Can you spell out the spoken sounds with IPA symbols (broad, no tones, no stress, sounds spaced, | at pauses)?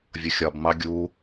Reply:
vʲ ʊ xʲ ɒ b m ɑ ɡʲ u